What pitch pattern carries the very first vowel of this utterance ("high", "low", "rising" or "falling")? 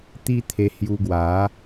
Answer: high